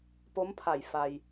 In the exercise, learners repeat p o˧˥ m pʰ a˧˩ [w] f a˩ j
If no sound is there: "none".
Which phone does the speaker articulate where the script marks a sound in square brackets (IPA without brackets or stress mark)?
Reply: j